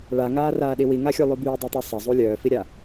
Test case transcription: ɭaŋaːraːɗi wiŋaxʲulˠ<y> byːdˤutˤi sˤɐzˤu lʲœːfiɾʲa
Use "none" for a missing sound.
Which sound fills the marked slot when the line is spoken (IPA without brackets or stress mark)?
y